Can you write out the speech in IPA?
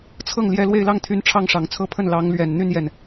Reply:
t͡sʰ ɤ˥˩ ŋ l j ɛ˧˥ l w e˥˧ ɪ̯ l ɑ˥˩ ŋ t̪ʰ y˧˥ n ʈ͡ʂʰ ɑ˥˩ ŋ ʂ ɑ˨˩ ŋ t͡sʰ ɤ˥˧ pʰ ə˥˩ n l ɑ˧˥ ŋ l ɥ ɛ˨˩ n n̪ y˥˧ n j ɛ˥˩ n

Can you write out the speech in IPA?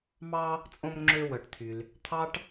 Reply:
m ɑ˥ | t͡sʼ õ˥ m ŋ͡ǁ ø˥ w œ˧ ʈ t̪ʰ y˧ l | t̪ʰ ɑ˥ ʈ

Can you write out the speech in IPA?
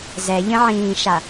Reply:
z ɛ ʎ ə̃ ʕ ĩː ʃ a

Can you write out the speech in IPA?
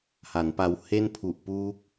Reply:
h a˩˦ n p a˧ w h e˥˩ n pʰ u˨˩ ʔ p uː˦˥ k̚

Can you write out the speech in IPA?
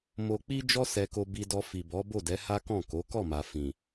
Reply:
m o˧ k͡p i˦ d͡ʒ ɔ˦ s ɛ˧ k o˧ b i˧ d ɔ˧ f i˨ b ɔ˨˦ b o˦˨ d ɛ˨˦ h a˦ k ɔ̃˦˨ k o˨˦ k ɔ˦˨ m a˨ f ĩ˨

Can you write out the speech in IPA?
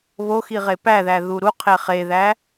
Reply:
β o x i ʁ e p æ ð æ ð u ɾ u qʰ e χ e ð æ

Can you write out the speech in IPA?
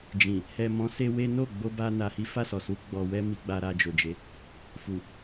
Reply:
d͡ʒ ĩ˨ | h ɛ˨ m ɔ̃˨˦ s e˧ w e˦ n o˦˨ ɡ͡b o˧ b a˦ n a˧ h i˦ f a˦˨ s ɔ˨ s u˨˦ ɡ͡b ɔ˧ w ɛ˦ m i˧ ɡ͡b a˧ ɾ a˧ d͡ʒ o˨ d͡ʒ e˨˦ | f u˨

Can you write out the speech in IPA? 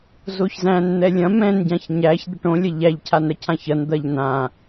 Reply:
z o ç z æ̃ n n̪ ɛ lʲ ɐ̃ m ɛ̃ n ɟ ã ç ɲ æ ç d̪ ɛ ʈ õ lʲ ɐ ʎ æ ʎ cʰ a n ɾ ɐ cʰ ã ç ɐ n d̪ ɐ ʎ n ã

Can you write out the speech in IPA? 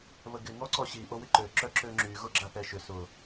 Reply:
β ə ɡ ɪ ŋ ɔ ǀ ɔ ɕ i ʔ o w ɪ ǃ ø ǁ œ ǁ ø ŋ͡ǁ y ɣ ʊ ɡ͡ǁ a θ ɛ ʃ ʏ s ʊ

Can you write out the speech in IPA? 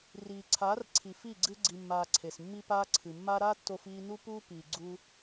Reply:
r iː˨ ǀʰ aː˨˦ r ǀʰ i˨ f i˦˨ ɡ͡ǀ ɨ˦ ɡ͡ǀ i˧ mː aː˧ ǀʰ e˨ s mː i˦ p aː˦ ǀʰ ɨ˨ mː a˦ ɾ a˦ tː o˧ f iː˧ n u˦ p uː˦ p iː˨ ɡ͡ǀ u˦

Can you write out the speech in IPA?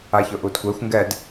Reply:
a ç ʊ ʔ u d kʷ e xʷ ŋ ɡ ɛ d

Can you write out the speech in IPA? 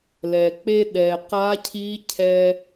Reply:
l ɛ˩ k͡p e˥ ɗ ɛ˩ q a˧˥ cʰ i˧˥ cʰ ɛ˧

